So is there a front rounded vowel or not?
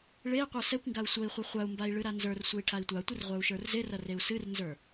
no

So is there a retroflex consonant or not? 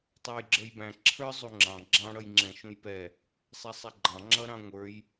yes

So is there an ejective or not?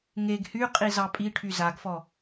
yes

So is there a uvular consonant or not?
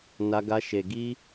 no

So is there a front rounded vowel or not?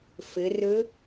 no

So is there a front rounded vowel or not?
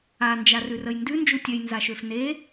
yes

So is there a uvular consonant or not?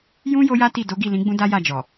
no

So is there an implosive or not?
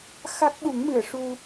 yes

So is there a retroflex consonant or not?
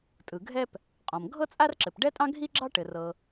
yes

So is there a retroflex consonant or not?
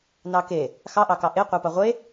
no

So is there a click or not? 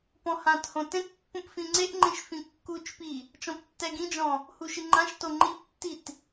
yes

